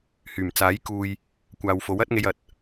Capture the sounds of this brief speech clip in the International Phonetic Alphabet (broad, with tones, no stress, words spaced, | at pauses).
hyː˨˩mt͡saː˨˥j kuː˨j | kʷaː˨w fo˨˥wɐ˥t̚ŋe˧jɐ˨t̚